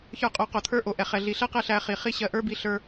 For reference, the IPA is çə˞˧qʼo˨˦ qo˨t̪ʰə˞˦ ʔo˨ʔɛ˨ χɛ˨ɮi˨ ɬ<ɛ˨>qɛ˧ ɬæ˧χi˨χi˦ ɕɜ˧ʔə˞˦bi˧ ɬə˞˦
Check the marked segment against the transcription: incorrect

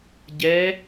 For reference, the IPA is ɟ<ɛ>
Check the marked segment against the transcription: correct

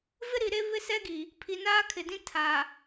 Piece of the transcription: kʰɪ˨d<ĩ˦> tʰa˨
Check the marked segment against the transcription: correct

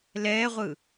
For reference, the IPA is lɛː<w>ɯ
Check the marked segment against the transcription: incorrect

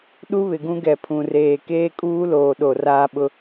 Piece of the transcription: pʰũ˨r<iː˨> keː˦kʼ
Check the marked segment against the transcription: incorrect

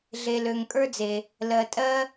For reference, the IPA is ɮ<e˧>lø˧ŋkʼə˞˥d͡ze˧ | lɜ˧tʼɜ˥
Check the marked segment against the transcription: correct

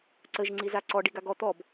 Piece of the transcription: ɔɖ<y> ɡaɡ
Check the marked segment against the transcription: incorrect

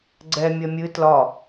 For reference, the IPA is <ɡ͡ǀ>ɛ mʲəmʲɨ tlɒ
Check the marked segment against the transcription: correct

